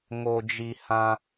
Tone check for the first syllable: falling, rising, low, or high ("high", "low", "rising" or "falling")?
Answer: low